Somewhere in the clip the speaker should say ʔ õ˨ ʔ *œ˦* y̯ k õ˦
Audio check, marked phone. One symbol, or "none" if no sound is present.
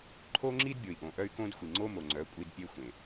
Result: œ˦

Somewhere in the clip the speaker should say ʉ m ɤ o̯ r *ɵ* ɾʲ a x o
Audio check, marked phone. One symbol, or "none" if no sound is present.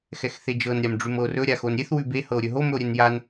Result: ɵ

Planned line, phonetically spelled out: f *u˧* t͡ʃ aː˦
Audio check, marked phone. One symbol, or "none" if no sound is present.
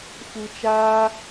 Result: u˧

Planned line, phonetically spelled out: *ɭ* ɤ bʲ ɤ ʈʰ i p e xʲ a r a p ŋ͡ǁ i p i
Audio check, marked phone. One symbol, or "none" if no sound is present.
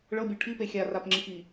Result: ɭ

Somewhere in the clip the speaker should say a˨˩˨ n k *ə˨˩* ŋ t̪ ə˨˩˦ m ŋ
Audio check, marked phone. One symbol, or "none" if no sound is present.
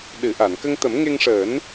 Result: ə˧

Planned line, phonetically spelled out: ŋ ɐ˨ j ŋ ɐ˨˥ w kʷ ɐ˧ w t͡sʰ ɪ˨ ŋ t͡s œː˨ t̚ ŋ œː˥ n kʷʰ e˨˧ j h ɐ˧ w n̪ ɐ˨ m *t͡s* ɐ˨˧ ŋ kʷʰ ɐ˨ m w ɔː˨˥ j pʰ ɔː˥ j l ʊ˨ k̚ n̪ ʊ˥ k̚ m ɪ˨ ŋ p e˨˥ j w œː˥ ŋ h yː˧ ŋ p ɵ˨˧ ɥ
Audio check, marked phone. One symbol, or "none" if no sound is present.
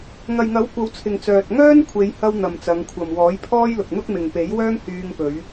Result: t͡s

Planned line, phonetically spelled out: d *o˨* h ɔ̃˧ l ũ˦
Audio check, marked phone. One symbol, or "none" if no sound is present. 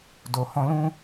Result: o˨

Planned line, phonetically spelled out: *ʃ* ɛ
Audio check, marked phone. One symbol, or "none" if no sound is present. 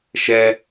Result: ʃ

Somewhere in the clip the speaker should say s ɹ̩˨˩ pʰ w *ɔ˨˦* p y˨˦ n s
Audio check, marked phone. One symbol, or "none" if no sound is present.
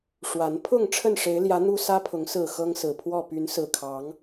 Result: ɔ˥˨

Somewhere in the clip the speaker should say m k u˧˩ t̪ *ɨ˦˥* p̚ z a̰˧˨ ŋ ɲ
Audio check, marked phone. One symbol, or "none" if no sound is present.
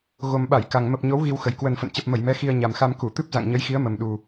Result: ɨ˦˥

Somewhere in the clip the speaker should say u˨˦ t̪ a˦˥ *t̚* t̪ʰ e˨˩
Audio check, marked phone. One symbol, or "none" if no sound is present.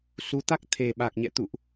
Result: k̚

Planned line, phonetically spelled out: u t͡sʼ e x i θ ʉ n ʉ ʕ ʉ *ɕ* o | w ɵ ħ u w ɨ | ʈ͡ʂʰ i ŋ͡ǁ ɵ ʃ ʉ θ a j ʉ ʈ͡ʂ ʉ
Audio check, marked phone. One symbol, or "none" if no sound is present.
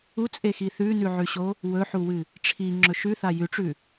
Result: ɕ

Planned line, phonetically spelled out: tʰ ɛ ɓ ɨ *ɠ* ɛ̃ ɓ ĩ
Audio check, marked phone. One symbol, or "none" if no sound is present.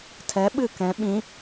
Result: k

